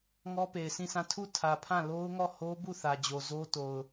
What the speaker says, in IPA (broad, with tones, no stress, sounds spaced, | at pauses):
ŋ ɔ˦ p e˨ ɪ̯ s ĩ˦˨ s ã˦˨ tʰ u˦˨ tʰ ä˨ pʰ ã˦˨ l o˦ ʊ̯ ŋ ɔ˦˨ h o˦ b u˦˨ θ ä˨ d͡ʑ o˨ z o˦ t o˨ ʊ̯